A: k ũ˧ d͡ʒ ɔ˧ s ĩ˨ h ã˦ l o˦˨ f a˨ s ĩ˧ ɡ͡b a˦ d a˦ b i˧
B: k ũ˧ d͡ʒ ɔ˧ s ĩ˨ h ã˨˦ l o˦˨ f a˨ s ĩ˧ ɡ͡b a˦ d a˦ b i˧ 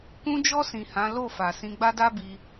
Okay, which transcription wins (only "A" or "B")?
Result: B